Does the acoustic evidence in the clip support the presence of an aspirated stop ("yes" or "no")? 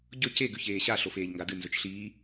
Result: no